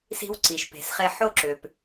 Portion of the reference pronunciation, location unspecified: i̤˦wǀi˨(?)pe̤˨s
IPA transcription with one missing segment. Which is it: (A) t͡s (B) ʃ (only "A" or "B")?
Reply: B